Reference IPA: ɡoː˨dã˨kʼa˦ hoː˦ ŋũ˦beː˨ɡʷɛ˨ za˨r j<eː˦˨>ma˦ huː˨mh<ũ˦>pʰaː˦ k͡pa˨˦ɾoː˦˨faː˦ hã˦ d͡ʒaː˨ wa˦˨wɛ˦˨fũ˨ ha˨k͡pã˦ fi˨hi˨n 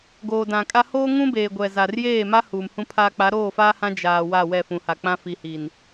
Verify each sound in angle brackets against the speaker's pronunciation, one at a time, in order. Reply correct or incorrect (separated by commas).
correct, correct